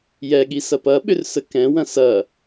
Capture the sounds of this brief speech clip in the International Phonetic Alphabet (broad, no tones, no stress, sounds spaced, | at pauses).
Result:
j ɛ ɠ i s ɐ p ɐ ɓ ʏ r s ə k ɛ̃ w ɐ̃ s ɐ